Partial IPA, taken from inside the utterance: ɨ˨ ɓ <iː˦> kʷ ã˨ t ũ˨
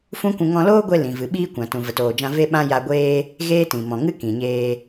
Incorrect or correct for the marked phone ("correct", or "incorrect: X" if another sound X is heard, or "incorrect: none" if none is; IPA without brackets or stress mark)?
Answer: correct